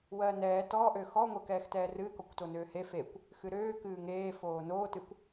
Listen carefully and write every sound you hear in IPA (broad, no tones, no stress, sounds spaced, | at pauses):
w ɜ n ɛː t ɔ ʔ ø x ɔ ŋʷ ɛ k ɛː x t ɛː r ɨː k ɔ kʷ t o n øː h e f e kʷ | x ɨ ɾ øː k ɨː ŋ eː f oː n oː t ɨ kʷ